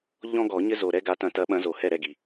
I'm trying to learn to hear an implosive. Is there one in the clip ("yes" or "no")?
yes